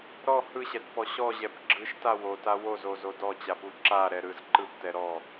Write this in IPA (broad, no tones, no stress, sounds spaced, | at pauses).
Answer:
ɾ ɔ h ɯ ɕ ɛ t p ɔ ɕ ɔ ʑ ɛ p ɡ͡ǁ ɯ ʃ t a w o t a w o z o z o d ɔ t͡ɕ a p u ǁ a ɾ ɛ ɾ ɯ z ǃ ɯ p t ɛ ɾ ɔ